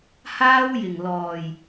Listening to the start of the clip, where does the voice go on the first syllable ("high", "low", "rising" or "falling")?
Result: high